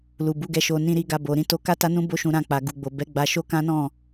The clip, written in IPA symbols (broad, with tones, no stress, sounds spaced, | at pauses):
l u˨ b u˨˦ ɡ ɛ˧ ʃ o˧ n ĩ˧ ɾ i˧ ɡ a˧ b o˨ ɾ ĩ˧ t o˧ k a˦ t a˦ n ũ˦ b o˦ ʃ ũ˧ ɾ ã˧ k͡p a˨ ɡ u˨ ɡ͡b o˨ b ɛ˨˦ ɡ͡b a˧ ʃ o˦ k ã˦ n ɔ̃˦˨